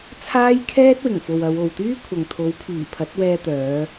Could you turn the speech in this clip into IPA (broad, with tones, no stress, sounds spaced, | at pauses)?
t͡sʰ aː˥ j kʰ ɛː˥ t̚ w ɪ˨˩ ŋ f o˨ w ɐ˨˧ w o˨ w t̪ yː˥ kʷʰ ɐ˨ ŋ t̪ʰ o˨˥ w pʰ iː˨˩ pʰ ɐ˨˥ t̚ w ɛː˧ t̪ œː˨˧